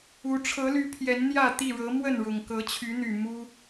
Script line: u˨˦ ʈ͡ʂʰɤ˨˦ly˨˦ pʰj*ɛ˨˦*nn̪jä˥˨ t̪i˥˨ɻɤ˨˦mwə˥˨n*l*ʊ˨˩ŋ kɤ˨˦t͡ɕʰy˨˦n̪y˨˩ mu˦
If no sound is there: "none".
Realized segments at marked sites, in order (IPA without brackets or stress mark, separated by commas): ɛ˨˦, ɻ